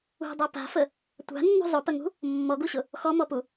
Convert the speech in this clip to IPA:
ṳ dˤ a p a̤ f ə | tʷ a̤ nː ṳ zˤ ʊ p ə ŋ ṳ | mː ɔ ɡ u ɕ ʊ | x ɔ m ɔ p u

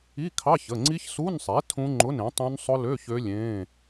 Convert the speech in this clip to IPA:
i˧˥˧ kʰ ɑ˧˥˧ ç ə˩˧˩ ŋ͡ǀ i˦˥ ç s u˧˥˧ n sˤ e˩˥ tʰ ũ˦˥ ŋ͡ǃ ʊ˧˥˧ n ẽ˩˥ tˤ ũ˦˥ n sˤ ʊ˦˥ l ø˧˥˧ ç ø˦˥ lʲ ẽː˧˥˧

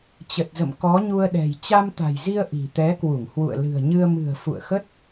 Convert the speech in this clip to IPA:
t͡ɕ ə˨˩ t̚ z ə̰˧˨ m k ɔ˨˦ ɲ u˧ ə̯ ɗ ɛ̤˨˩ j t͡ɕ a˧ m t̪ a̤˨˩ j z i˧ ə̯ ʔ i̤˨˩ t̪ ɛ˨˦ k w u˧˩ ŋ h w ṵ˧˨ ə̯ l ɨ̤˨˩ ə̯ ɲ ɨ˧ ə̯ m ɨ̤˨˩ ə̯ f ṵ˧˨ ə̯ x ə˦˥ t̚

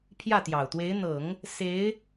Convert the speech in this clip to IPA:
pʰ j ä˥˩ t̪ j ɑ˨˩ ʊ̯ t̪ w e˧˥ ɪ̯ n̪ ɤ˨˩˦ ŋ | s e˧˥ ɪ̯

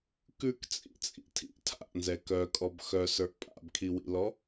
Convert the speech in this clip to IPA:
k ʉ k t͡sʼ ḭ t͡sʼ ḭ tʰ ḭ ʔ tʰ a̰ ʔ n z ɛ k œ kʼ ɔ b x œ s ə˞ ʔ pʼ a̰ b kʰ i w ḭ l ɔ

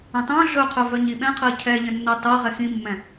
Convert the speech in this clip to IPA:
ə̃ tˤ œ̃ ɮ ɵ qʰ œ v œ ɲ i ɓ ɛ̃ qʰ ɜ cʰ ɛ ʎ ə̃ nː œ tˤ ɜ ʁ ɛ x ĩ mː ɛ̃

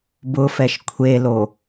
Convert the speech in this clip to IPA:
b ʊ f ɛ ʃ kʷʰ e l o

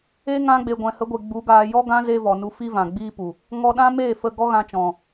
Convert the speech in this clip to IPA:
e˦ ŋ ã˧ ɡ͡b e˨ ɡʷ ɛ̃˨ h ə˨˦ ɡʷ e˨ ɡ͡b u˨˦ ɡ aː˧ j ɔ˦ ɡ ã˦ z e˧ v ɔ˨ n u˧ f i˦ v ã˨ ɡ͡b iː˧ p u˨ | ŋ ɔ˧ ɗ ã˦ m eː˦˨ f ə˧ ɡ ɔ˦ ɣ ã˧ t͡ʃ ɔ̃˨

